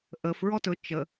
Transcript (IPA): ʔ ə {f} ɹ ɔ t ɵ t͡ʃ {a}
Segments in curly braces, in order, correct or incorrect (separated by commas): correct, incorrect